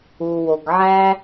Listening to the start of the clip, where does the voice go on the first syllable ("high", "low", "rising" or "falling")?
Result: low